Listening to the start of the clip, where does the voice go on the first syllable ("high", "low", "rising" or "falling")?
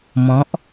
rising